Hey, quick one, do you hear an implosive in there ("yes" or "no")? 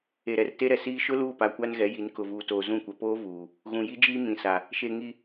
no